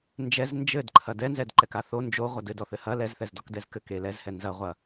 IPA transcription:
n d͡ʒ ɛ z n d͡ʒ ɘ d ǃʰ ɐ d ɛ n z ɛ d ǃ ɛ k a θ o n d͡ʒ o ʁʷ ɐ d ɘ d ɔ θ ɘ h ɐ l ɛ z θ ɛ z d ɔ k d ɛ z k ɘ k e l ɛ z h ɛ n z ɐ ʁʷ ɐ

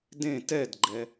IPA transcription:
d ẽ t ɛ d ɡ͡ǃ ɛ

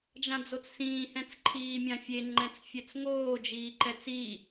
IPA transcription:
d͡ʒ ã d͡z o t͡s s ĩː h ɛ̃ t͡s ǃʰ iː mʲ ã fʲ e ŋ͡ǃ ɛ̃ t͡s fʲ ɛ t͡s ŋ oː d͡ʒ iː ǃ ɛ t͡s i

